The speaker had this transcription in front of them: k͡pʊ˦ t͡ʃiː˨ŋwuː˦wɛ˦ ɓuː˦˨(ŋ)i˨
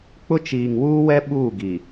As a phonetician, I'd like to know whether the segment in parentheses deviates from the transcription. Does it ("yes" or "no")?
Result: yes